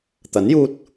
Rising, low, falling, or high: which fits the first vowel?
rising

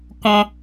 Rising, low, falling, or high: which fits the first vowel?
high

